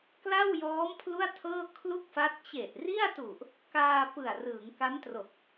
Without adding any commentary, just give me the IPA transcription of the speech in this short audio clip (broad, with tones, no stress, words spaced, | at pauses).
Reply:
kla˥˩wjɔː˦˥m pʰlu˥˩a̯tʰɤː˥˩kʰlu˥˩k̚fa˦˥t̚ t͡ɕe˨˩ʔri˥˩a̯tu˨˩ʔ | kaː˧ pɯ˨˩a̯rɯː˩˦ŋ ka˦˥mtro˨˩k̚